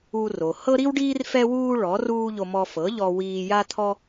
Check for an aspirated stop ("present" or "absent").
present